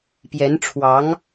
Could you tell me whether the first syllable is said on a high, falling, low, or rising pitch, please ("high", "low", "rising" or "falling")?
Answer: rising